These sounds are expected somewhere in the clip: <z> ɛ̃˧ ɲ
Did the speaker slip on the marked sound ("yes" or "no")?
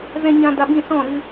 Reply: no